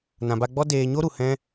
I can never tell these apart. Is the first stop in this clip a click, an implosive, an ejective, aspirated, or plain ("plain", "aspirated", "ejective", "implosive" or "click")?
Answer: plain